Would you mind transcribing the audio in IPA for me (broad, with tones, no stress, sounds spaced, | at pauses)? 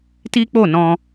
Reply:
t i˦ k͡p o˦˨ n ɔ̃˧